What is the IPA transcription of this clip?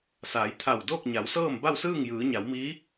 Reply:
s aː˩˧ j t̪ʰ a˧˩ w d oː˥˨ k̚ ɲ a˩˧ w s ɤː˥˨ m b a˥˨ w s ɯː˥˨ ŋ j ɯː˩˧ ɲ a˩˧ w m iː˧˥

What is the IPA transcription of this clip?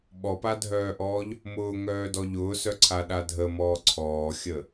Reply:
ɓ ɔ p a dʱ œː ʔ ɔː ʎ | m ʊː ŋ œː d ɔ ʎ ʊː s œ ǀʰ a ɗ a dʱ ə m ɔː ǀʰ ɔː xʲ ə

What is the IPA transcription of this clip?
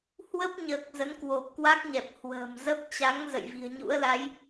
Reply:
h w ə˦˥ p̚ ɲ əː˨˩ k̚ z ə˨˦ n k w o˨˩ p̚ k w a˦˥ k̚ ɲ ɛ˨˩ p̚ h w ə̤ː˨˩ m z ə˦˥ p̚ t͡ɕ a˨˦ ŋ z ə̰˧˨ j v i̤˨˩ ə̯ ɲ ṵ˧˥ ə̯ l a˨˦ j

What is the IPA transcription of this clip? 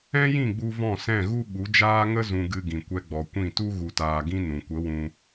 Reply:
ɛ̃˦ j ĩ˦˨ ɡ͡b u˧ v ɔ̃˦˨ s ɛ̃˦˨ ɣ u˦ ɓ u˨˦ d͡ʒ aː˦ ŋ ə˦ z ũ˧ ɡ ɨ˧ ɡ ĩ˨ kʷ ɛ˧ ɡ͡b ɔ˨ kʷ ĩ˦˨ t u˦ ɣ u˨ t aː˨ ɡ ĩ˧ n ũ˨ kʷ ə˨˦ w ũ˧

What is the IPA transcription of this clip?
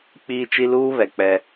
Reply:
k͡p iː˦ t͡ʃ i˦ l uː˦ β ɛ˨ k͡p ɛ˦

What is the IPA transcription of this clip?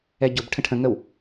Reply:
ɛ ɟ ʊ b ʈʰ ə̃ ʈʰ ə̃ ŋ ə w

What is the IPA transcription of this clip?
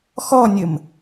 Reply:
x ɔ nʲ ə m

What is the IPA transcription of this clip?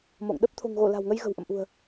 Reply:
m o̰˧˨ ŋ ɗ ə˦˥ p̚ t̪ʰ o̤˨˩ ŋ ɣ o˧˩ l a̤˨˩ w ŋ ə˧ j ɣ ə̤˨˩ w ʔ ə̰˧˨ m ʔ ṳ˨˩ ə̯

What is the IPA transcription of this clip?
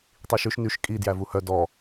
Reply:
tˤ i ʃ ʉ ʃ n y ʃ kʼ i d j æ v u h œ d ɔ

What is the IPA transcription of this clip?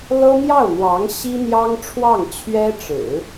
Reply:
l ɤ˥ n̪ j ɑ˥˩ ʊ̯ n̪ w ɑ˧˥ ŋ ɕ i˥ n̪ j ɑ˥ ŋ ʈ͡ʂʰ w ɑ˥˩ ŋ t͡ɕʰ ɥ ɛ˥ ʈ͡ʂ ɻ̩˨˩˦

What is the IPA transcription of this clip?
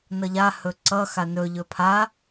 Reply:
n ʌ ʎ a h ɵ ǀ ʌ x a n ɵ ʎ ɵ pʰ a

